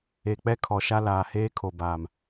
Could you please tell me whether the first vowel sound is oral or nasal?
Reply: oral